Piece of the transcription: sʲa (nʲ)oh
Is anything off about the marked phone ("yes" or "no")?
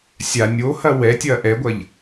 no